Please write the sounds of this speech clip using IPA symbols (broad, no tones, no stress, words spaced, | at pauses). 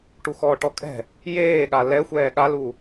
ʈuxɔːʈɔkʼɛ̤ | jeːɠa lɛxʷɛː ɠalu